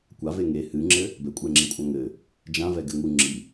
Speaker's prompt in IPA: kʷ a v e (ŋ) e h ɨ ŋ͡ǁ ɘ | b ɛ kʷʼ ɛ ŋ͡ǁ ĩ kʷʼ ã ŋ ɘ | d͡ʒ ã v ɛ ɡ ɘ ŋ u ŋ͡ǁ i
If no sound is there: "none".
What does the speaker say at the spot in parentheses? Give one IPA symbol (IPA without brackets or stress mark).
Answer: ŋ